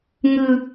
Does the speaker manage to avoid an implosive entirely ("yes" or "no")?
yes